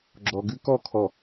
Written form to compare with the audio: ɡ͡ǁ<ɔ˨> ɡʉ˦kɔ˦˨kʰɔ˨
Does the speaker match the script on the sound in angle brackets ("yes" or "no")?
yes